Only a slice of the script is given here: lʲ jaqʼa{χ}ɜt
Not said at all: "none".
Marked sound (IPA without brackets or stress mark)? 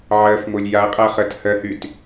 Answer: χ